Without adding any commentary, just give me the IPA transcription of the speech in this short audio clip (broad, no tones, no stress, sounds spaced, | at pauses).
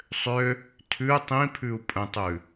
sˤ ø | tʰ ʉ tˤ ĩ pʰ ʉ u̯ pʼ ə̃ tˤ ʉ